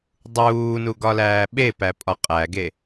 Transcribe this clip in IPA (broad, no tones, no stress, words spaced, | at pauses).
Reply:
dˤuːnuɡɒlæː ɓepæpʼɒ qʼæɡe